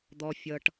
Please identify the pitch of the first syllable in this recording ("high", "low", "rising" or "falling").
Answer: low